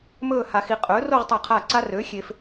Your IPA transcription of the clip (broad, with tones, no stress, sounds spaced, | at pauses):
m ɵː˥˧ h a˧ x i˧ qʼ ɵː˨˥ r o˥˧ ʁ tˤ a˧˩ qʰ a˧˩ ǀ a˧ r ø˨˥ xʲ e˧ f